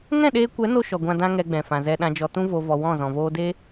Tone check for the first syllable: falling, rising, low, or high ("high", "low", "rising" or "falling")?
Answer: falling